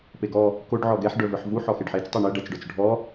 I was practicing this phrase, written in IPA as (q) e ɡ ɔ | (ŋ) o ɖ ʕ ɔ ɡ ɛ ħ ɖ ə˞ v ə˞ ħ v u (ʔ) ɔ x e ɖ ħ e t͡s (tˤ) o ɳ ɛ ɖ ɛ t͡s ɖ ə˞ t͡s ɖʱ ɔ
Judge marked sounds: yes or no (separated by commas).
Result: no, no, no, yes